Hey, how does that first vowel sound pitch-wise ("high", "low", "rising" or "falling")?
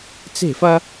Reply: falling